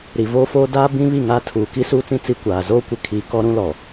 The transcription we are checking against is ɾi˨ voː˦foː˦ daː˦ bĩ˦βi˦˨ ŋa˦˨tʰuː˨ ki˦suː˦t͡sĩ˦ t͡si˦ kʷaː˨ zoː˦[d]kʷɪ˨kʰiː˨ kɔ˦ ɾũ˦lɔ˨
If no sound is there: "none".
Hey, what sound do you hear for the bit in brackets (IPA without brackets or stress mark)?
none